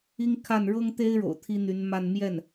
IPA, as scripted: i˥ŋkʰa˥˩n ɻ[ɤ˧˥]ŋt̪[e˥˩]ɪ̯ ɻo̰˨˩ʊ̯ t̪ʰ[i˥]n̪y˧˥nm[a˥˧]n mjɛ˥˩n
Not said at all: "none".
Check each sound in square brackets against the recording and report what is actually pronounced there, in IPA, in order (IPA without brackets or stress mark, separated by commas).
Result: ɤ˥, e˥, i˥, a˥˧